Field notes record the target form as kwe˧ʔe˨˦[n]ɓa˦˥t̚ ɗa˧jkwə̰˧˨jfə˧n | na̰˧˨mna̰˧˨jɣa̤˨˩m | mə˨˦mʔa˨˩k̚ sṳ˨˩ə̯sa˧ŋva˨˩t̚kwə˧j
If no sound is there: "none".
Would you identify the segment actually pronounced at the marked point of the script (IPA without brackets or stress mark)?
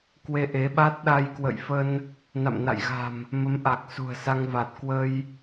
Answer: none